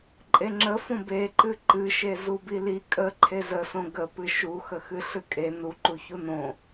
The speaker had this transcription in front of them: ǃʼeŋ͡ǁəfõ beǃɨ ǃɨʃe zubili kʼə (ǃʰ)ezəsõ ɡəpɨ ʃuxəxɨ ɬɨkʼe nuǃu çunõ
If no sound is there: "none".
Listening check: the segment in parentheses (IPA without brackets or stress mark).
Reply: ǃʰ